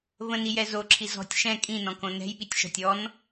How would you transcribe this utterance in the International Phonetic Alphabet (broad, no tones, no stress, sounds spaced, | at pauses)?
v ə̃ n i j ɛ z o ǁʰ i z ɔ̤ tʲ ʃ ɛ̃ kʼ ĩ n ɔ̃ k õ n ɛ̤ j ɓ i tʲ ʃ ɔ̤ tʲ ɔ n